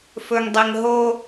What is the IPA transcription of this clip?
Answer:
f ɵ ŋ dˤ e ŋ ɦ o

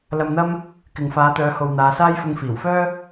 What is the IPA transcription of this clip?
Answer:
l ɐ˧ m n̪ ɐ˥ m | k ɪ˨ ŋ f aː˨˧ t̪ œː˨˧ h o˨ w n̪ aː˨˧ s aː˥ j f ʊ˧ ŋ f iː˨˩ w f œː˥

